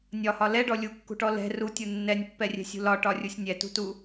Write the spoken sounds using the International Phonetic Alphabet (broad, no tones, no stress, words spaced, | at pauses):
nʲɒhɒ lɛɖɔ lʲukːṳʈɔ lɛ̤ rutʲu nːɛnʲpːɛrʲɛ̤sʲṳ lɒʈɒrʲusʲ nʲɛtṳtu